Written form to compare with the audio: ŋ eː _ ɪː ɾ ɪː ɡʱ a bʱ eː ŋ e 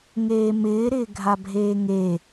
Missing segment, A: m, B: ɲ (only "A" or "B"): A